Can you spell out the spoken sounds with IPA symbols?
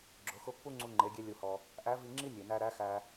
ɡ͡ǁ ʊ˩˧ x ʊ˧˥ pː u˥ ŋ͡ǀ u˧ ŋ͡ǃ e˩˧ ɡʲ e˧ lʲ u˩ h ɔ˩ | ʔ æ˧˥ v i˧ ŋ͡ǁ i˥ nʲ e˩ n æ˧ ɾ æ˧˥ x æ˧

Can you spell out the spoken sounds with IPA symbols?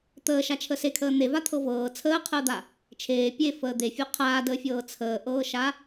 t̪ əː ʃ a t͡ʃʰ ə s e kʰ əː n̪ e v a t̪ʰ ɤ v ɤː t͡sʰ əː qʰ əː d̪ a | t͡ʃʰ eː pʲ e f əː d̪ e fʲ o qʰ aː d əː fʲ ɤː t͡sʰ əː ʔ ɤː ʃ a

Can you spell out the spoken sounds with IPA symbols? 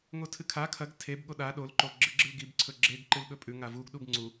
ŋ o tʰ ɨ kʰ a kʰ ɐ ɡ tʰ e b ɠ o ɗ a ɗ o l ǃ o ɡ͡ǁ ɨ ɡ͡ǁ ɨ l ɡ i b ǀʰ ɵ ɡ͡ǁ e ɡ ǃ ɨ l ɠ ɵ pʼ ʉ ŋ a v u ɡ ɗ u b ŋ͡ǀ u

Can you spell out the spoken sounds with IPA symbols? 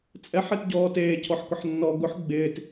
t͡sʼ ɛ ħ e t ɟ ɔː t eː cʰ ɔ ħ k ʊ ħ nː ɔ ɡ ʊ ħ ɡ͡b ɪː t

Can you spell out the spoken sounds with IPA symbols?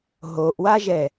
ɦ o ʔ w a ʒ ɛ

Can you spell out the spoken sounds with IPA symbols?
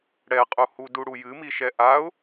ɽ ɛ qʼ u h u d u ɽ u j ɨ m i ʃ ɛ ʔ a ʊ̯

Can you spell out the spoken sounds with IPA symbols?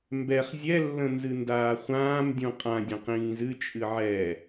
m b ɛ χ zʲ ɛ lː ə̃ n z ɨ n d aː χʷ ãː m dʲ ũ qʼ ã dʲ ə̃ q ĩː z ɨ t͡ʃʼ ɨ ʕ ɛ

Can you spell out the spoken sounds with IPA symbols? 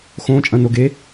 x õ t͡ʃʼ ɐ̃ n o ɡ e

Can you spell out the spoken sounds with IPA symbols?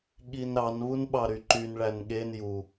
ɠ i n ɾ ɑ n β u n ɓ ɑ ɾ y ǃ y n ɭ æ n ɠ e n j u

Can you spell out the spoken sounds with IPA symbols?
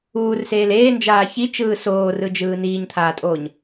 uː r s eː l eː n d͡ʒ aː ç i t͡ʃ ɯː s oː r ɯ d͡ʒ ɯː n iː ɲ t̪ʰ aː tʼ oː ɲ

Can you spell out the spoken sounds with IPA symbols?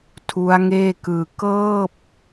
tʰ u˦˥ a̯ ŋ eː˥˩ k ɯː˧ k ɤː˥˩ p̚

